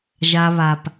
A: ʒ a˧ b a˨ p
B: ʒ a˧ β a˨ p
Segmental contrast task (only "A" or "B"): B